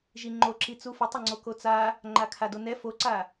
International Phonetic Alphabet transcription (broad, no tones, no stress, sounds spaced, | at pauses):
ʒ i ŋ͡ǃ o ǁ i t͡s u f ə tˤ ə ŋ͡ǀ o k o t͡s a | ŋ͡ǃ a kʰ a d o n ɛ f o ǀ a